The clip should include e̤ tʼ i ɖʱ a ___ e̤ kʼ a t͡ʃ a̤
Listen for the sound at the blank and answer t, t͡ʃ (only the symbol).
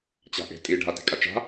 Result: t